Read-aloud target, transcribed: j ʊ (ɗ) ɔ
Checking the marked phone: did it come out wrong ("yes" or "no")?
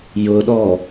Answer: no